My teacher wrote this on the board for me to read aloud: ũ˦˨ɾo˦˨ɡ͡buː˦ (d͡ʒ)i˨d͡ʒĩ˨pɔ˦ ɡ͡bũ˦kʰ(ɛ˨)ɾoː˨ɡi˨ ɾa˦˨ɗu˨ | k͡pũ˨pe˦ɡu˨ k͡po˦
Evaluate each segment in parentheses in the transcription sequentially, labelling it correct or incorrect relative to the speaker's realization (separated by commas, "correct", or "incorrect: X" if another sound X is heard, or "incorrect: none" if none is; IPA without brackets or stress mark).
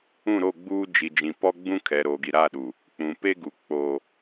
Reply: correct, correct